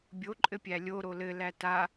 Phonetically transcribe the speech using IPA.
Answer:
bʲ o ǃʼ ɘ pʲ æ lʲ o ɾ o l ɘ l æ t a

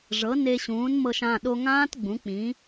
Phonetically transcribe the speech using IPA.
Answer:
ʐ ɤ˩˥ n e˧ ɕ ũː˩˥ n m ɤ˧ ʃ ã˩˧˩ ɗ o˧ ŋ ãː˦˥ t ɡ͡b ũ˩˥ k͡p ĩ˩˥

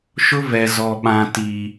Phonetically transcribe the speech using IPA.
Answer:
ʃ ʊ˦ v ɛ˨ z ɔ˨ ɓ ã˨ t i˨

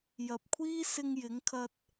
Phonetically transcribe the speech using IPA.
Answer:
j ɐ˨ p̚ kʷʰ iː˥ s ɪ˧ ŋ j ɪ˨˥ ŋ kʰ ɐ˧ t̚

